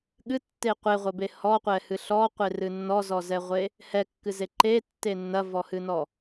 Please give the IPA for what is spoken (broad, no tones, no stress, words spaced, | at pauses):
ɠɨtːe qʷeʁʷɐbe hɔqʷɛhɨ ɬɔqʷerɨ nːɔzɔzɛʁʷe | hɛkːɨze ǃetːe nːɐvɔhɨnɔ